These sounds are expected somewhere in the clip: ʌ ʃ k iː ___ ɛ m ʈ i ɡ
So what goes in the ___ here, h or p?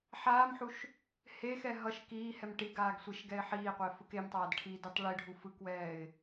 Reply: h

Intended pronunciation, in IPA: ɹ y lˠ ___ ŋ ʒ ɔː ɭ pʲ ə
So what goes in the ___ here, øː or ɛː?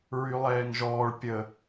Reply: ɛː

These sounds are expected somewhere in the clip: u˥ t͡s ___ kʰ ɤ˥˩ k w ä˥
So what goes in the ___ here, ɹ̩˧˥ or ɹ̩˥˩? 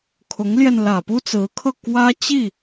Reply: ɹ̩˧˥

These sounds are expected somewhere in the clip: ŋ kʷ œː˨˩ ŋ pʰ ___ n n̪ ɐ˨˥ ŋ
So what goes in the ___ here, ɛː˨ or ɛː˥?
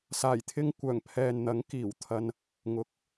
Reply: ɛː˨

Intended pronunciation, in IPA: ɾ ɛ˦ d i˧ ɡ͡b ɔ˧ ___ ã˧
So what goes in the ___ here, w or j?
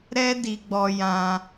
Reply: j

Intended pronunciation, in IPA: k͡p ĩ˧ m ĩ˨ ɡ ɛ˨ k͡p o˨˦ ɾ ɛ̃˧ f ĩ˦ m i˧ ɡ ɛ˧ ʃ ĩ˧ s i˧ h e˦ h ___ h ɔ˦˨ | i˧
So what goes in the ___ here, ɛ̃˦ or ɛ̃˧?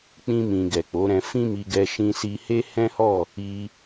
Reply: ɛ̃˦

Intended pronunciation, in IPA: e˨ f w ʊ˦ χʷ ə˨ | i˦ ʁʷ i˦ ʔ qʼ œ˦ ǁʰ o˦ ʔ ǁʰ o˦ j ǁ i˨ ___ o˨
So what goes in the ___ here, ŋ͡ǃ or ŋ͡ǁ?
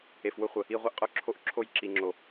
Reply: ŋ͡ǁ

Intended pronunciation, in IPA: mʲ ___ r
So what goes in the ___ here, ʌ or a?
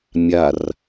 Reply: a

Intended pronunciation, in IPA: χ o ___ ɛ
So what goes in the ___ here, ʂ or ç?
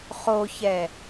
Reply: ç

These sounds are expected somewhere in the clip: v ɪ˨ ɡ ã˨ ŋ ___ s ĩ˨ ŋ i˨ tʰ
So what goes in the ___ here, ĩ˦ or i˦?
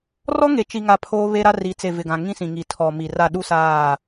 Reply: ĩ˦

